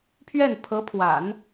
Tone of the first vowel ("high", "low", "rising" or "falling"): falling